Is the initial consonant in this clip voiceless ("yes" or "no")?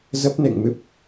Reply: no